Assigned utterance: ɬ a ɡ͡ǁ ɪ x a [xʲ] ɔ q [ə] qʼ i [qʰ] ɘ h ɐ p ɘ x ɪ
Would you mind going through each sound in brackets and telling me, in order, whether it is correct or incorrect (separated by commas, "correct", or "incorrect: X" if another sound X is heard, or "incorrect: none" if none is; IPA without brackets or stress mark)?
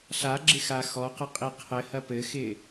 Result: incorrect: x, correct, correct